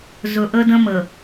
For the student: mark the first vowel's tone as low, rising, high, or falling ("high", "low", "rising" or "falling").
low